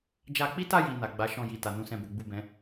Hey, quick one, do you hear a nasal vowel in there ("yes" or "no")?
yes